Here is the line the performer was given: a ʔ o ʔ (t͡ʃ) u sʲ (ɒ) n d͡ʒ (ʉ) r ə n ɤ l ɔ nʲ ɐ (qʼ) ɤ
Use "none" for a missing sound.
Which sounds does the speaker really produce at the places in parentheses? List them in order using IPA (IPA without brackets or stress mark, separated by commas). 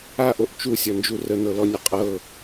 t͡ʃ, ɒ, u, qʼ